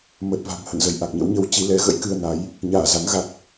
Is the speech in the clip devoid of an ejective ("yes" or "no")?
yes